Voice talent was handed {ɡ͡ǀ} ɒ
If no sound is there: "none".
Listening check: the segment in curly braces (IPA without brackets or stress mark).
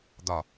d̪